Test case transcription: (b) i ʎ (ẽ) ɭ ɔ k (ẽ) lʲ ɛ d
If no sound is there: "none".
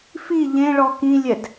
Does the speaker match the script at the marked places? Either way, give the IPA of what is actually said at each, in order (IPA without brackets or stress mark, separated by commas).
f, ẽ, ĩ